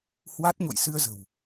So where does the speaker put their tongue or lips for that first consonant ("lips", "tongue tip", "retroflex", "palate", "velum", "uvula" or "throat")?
throat